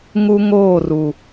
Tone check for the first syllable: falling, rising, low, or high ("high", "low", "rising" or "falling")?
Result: high